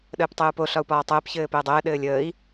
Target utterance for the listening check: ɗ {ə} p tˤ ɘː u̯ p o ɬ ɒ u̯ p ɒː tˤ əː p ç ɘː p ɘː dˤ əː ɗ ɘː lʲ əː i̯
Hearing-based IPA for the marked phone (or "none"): əː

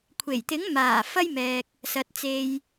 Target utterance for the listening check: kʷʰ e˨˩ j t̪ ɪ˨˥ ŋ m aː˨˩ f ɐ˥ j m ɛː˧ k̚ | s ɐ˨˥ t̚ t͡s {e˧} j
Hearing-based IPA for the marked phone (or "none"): e˧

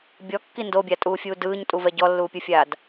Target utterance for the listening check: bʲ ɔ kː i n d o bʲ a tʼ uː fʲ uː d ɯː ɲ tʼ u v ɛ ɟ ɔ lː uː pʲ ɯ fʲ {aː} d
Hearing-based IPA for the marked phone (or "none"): aː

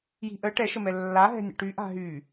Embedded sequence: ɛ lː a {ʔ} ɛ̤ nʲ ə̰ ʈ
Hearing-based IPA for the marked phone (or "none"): ɦ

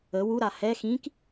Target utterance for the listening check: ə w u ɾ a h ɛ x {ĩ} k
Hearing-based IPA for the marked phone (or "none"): ĩ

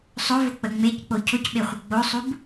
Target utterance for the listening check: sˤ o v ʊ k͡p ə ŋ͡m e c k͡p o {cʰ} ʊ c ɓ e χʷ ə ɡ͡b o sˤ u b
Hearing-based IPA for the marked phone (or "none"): cʰ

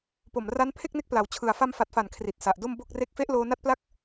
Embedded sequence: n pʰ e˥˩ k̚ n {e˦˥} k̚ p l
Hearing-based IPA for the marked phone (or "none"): e˦˥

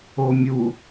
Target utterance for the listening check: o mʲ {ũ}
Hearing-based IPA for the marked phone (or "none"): u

